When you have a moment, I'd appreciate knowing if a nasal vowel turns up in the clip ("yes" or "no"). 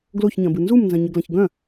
yes